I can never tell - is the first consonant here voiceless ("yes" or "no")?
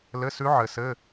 no